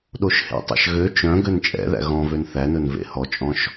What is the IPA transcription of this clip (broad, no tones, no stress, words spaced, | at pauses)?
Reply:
ɗoʃhḛtˤɑ̰ʃ ɣø t͡ʃœ̃ ɡønt͡ʃʼɛ̰ðæ̰ ɣɔ̃vøn θænɵn vḛhɔt͡ʃʼɔ̃ʃ